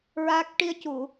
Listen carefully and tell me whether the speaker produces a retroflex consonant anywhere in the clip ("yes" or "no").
yes